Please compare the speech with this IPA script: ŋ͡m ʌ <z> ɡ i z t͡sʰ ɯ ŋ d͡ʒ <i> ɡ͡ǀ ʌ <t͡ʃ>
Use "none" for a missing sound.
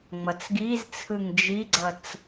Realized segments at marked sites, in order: t͡s, i, t͡s

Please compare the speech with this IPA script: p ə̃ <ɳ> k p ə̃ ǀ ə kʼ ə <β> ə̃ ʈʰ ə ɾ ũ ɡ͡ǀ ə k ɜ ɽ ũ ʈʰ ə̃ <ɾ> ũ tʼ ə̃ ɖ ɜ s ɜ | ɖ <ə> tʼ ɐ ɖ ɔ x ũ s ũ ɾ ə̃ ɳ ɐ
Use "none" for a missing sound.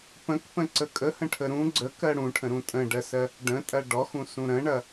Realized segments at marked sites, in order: none, h, ɾ, ə̃

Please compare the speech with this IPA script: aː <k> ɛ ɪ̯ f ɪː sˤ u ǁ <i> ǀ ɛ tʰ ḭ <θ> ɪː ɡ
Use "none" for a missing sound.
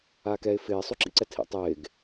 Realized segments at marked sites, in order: k, ḭ, tˤ

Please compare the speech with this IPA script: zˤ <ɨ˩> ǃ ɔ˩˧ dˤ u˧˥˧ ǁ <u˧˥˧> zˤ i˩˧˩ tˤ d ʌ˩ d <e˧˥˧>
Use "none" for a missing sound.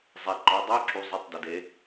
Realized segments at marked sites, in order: e˩, u˩˧, e˩˧

